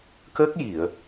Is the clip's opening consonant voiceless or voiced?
voiceless